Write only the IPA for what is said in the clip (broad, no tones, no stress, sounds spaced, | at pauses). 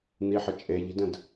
n̪ i ħ ə t͡ʃʼ e ʎ i̤ d ə̃ d